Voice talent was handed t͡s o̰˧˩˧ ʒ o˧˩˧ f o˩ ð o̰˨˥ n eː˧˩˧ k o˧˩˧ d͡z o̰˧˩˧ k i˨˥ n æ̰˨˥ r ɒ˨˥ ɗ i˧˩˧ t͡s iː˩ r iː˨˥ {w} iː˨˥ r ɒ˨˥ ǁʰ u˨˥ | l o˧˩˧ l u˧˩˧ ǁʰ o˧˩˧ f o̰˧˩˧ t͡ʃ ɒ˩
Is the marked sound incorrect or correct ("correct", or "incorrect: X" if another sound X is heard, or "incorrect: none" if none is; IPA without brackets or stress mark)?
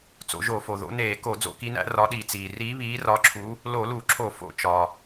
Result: incorrect: β